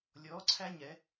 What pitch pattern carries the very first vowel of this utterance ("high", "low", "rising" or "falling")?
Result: rising